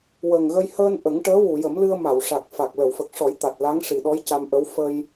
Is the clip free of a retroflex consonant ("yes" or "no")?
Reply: no